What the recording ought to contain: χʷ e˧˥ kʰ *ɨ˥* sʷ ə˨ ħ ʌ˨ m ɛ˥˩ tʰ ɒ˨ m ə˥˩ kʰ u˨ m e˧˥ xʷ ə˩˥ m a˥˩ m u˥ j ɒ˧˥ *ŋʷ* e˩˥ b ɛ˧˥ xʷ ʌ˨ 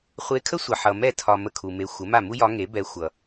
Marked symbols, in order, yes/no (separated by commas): no, no